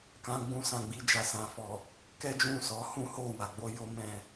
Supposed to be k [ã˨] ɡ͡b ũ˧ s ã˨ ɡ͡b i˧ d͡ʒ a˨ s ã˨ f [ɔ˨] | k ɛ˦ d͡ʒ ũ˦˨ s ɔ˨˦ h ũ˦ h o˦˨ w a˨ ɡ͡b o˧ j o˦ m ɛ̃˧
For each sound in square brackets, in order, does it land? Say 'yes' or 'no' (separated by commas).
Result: no, yes